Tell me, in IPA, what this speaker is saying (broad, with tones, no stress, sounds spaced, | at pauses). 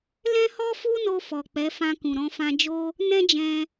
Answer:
l ɛ̃˦ h ɔ˦ f u˦ n o˧ f ɔ˨ k͡p ɛ˨˦ f ã˧ k ũ˨ ɾ ɔ̃˧ f ã˧ d͡ʒ o˦ | n ɛ̃˦ d͡ʒ ɛ̃˧